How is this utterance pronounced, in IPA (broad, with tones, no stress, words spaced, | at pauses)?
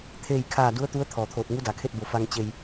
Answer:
t̪ʰeː˥˨jkʰaː˥˨ du˧˥ə̯t̪u˧˥ə̯ t̪ʰɔː˩t̪ʰoː˧˩t̚ ŋu˧˥da˩kʰe˥˨t̚ bo˧˩fa˧ŋ t͡ɕe˧j